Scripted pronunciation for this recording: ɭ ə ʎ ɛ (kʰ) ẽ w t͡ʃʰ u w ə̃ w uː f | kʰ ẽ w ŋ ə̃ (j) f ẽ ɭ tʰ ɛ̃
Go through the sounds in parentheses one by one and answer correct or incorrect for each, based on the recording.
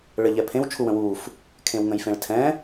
incorrect: pʰ, correct

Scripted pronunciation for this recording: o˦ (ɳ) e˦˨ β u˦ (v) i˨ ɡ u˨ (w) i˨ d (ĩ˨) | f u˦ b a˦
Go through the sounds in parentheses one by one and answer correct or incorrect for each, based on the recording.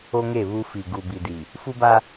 incorrect: ŋ, incorrect: f, incorrect: b, incorrect: i˨

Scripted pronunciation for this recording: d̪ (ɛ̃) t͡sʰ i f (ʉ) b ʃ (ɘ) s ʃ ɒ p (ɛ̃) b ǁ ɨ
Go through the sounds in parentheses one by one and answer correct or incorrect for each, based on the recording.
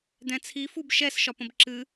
correct, incorrect: u, incorrect: ɛ, incorrect: ə̃

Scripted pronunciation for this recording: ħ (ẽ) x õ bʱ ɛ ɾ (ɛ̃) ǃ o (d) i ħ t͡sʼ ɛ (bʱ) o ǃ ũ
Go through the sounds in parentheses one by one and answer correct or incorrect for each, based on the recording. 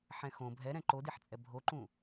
incorrect: ɛ̃, correct, correct, correct

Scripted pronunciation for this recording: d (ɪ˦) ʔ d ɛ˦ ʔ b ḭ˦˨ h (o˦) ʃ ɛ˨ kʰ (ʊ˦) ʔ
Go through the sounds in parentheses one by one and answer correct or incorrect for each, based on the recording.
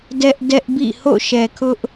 incorrect: ɛ˦, incorrect: o̰˦˨, correct

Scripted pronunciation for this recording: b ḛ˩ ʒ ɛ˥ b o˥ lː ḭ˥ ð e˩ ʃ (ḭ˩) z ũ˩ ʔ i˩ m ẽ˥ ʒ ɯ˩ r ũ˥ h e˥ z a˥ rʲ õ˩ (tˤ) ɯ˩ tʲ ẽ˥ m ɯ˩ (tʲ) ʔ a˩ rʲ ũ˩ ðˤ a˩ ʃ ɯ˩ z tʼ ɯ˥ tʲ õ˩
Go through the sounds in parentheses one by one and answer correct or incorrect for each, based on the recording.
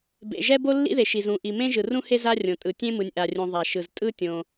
incorrect: i˩, incorrect: tʼ, incorrect: nʲ

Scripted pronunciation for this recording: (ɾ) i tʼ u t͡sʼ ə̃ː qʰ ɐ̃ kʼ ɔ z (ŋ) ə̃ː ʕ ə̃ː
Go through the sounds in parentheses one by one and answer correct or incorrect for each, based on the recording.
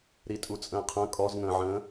correct, correct

